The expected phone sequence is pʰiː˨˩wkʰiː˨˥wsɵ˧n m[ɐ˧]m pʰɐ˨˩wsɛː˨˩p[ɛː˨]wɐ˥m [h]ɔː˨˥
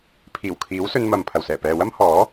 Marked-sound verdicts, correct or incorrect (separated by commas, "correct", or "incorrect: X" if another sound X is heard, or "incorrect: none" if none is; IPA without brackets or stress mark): incorrect: ɐ˨, correct, correct